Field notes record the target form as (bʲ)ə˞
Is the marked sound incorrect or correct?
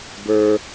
incorrect: b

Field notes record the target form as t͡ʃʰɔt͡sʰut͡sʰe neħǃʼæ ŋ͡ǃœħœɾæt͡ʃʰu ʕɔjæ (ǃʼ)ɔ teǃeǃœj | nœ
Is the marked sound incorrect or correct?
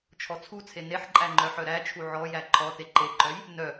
incorrect: ǃʰ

